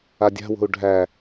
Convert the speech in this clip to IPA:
a dʲ a̤ w o̤ u̯ ɖʱ æ

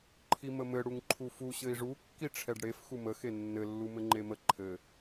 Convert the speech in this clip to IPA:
ǃʰ i m ə m ɘ ɽ u ŋ ǃʰ u f u ɕ ɘ i̯ ʐ u kː i ʈ͡ʂʰ ɛ ɖ ɽ e f x u m ə x e nː ɘ lː u m ɘ ŋ͡ǃ e m ə ǃʰ ɘ

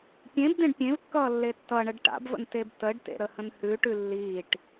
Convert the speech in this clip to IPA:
pʲ ẽ b d̪ ẽ ɖ pʲ ẽ v kː ʌː lː e tː ʌ ɳ ə ɖ ʈ a̰ b v ə̰ n t e b t ə ɖ t ḛ ɾ ə h ə̃ n h ʉ ʈ ʉ lː iː ʈ

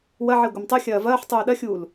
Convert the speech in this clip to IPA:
w ɐ ʕ i ɡʷ ɐ m tˤ ɯ xʲ ɐː v ɐː ħ tˤ uː ɗ ɐ xʲ uː l

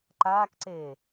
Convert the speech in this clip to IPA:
ǃ aː k ǀ e

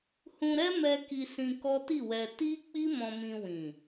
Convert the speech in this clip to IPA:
h ũ˧ ɾ ɛ˦ m ɛ˧ k i˧ s ĩ˧ k ɔ˦ t i˦˨ w ɛ˧ t i˦ k͡p i˦ m ɔ̃˧ m ĩ˧ w ĩ˨

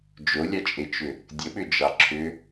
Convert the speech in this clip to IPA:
d͡ʒ o lʲ ɑ t͡ʃʼ e t͡ʃ ʏ | dʲ ə ɓ ʏ d͡ʒ ɑ ǁʰ ʏ

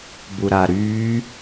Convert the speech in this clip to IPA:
b u ɾ a ɾ y

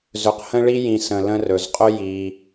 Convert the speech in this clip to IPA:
z ɵ˨ q h ə̃˦ ɭ i˦ j ĩ˨ s ə̃˨ l ə̃˦ r ɵ˩ z qʼ ɵ˥ j i˩

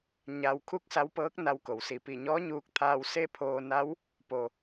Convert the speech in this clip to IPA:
ɲ a˧ w kʰ u˥˨ k̚ s a˧˥ w p ɤː˧˥ k̚ n a˧˥ w k o˩ w s i˧˩ p i˧˩ ɲ ɔː˧˥ ɲ uː˧ k̚ t̪ʰ aː˧ w s e˥˨ pʰ oː˧ n a˧˥ w | p o˩

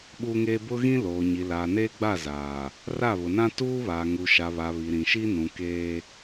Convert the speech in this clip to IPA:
ɓ uː˦ ŋ eː˦ b ʊ˦ ɣ ĩ˦ l oː˨ ɲ i˨ l aː˨ n eː˦ ɡ͡b a˦˨ z aː˨ | r a˦˨ β ʊ˨ n ã˦ t uː˦ β aː˨ ŋ u˨ ʃ a˨ β a˨ β i˨ ɾ ĩ˨ ʃ i˦ n ũ˨ k eː˦

